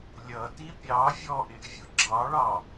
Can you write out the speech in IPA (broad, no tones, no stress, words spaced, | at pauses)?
lʲʌti pʲɑ vʲɔʔɪʔ vʲʊɡ͡ǁɑɭɑ